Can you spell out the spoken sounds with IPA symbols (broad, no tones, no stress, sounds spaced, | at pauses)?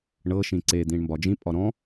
ɳ ɤ ʃ ĩ ǀ e d̪ ĩ ɳ m b ɒ d͡ʒ ĩ pʼ ɒ ɾ ɔ̃